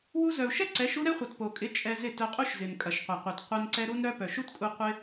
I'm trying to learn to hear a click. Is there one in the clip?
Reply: yes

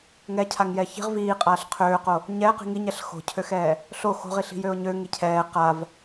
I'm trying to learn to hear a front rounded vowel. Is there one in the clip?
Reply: yes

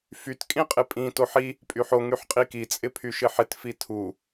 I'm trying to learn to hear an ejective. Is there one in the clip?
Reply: yes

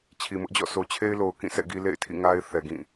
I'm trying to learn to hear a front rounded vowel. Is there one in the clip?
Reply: no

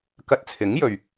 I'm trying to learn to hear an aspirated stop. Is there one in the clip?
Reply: yes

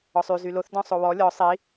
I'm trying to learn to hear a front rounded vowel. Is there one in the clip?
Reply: yes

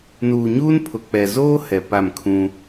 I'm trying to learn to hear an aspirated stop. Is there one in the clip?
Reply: yes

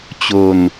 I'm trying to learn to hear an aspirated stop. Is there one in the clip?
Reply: no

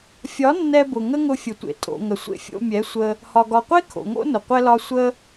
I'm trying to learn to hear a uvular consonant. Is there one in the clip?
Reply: yes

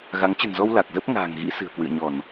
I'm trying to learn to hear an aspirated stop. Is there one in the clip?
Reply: no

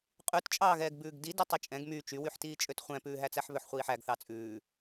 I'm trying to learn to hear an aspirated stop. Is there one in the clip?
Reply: no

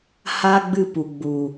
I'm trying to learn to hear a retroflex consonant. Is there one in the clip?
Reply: no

